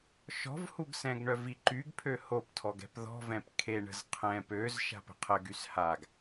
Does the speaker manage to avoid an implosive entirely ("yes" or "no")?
yes